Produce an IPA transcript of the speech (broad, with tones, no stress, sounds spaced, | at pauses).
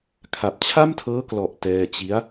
kʰ a˨˩ p̚ t͡ɕʰ a˥˩ m tʰ ɤː˦˥ k l ɔ˨˩ ʔ t ɛː˧ t͡ɕ i˦˥ a̯